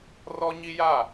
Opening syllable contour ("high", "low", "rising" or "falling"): high